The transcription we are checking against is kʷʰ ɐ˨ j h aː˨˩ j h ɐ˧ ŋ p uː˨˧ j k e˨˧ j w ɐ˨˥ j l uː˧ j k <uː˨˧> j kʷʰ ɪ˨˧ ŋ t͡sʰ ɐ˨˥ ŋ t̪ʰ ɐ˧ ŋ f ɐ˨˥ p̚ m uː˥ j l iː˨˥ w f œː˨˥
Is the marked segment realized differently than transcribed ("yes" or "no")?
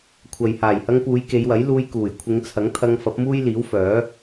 yes